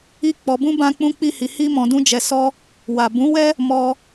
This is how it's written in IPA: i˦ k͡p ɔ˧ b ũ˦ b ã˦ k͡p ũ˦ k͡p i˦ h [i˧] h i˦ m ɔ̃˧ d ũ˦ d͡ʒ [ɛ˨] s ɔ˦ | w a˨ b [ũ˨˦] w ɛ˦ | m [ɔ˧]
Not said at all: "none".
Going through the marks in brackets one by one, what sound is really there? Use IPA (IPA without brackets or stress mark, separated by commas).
i˧, ɛ˧, ũ˨˦, ɔ˧